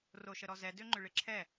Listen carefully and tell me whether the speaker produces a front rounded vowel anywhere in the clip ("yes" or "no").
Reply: yes